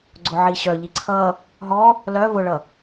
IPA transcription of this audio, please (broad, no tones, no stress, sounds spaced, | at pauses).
ɡ͡ǀ ʊ ʕ i ɕ œ ʎ i ǀʰ ʌ | ɦ ɔ | l œ v ʊ ɭ ʌ